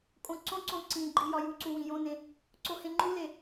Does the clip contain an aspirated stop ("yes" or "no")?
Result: no